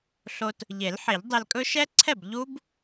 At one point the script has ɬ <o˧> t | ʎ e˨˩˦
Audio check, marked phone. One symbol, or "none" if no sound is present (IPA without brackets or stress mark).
o˧